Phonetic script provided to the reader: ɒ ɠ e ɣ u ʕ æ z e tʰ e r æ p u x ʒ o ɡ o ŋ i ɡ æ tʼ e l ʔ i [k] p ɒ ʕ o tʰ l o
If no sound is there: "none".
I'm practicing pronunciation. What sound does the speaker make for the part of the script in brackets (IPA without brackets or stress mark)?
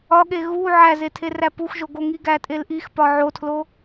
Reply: x